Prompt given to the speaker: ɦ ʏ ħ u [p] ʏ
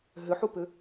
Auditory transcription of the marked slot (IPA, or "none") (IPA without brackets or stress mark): p